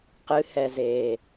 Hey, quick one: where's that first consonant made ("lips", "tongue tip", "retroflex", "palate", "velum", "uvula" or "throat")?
uvula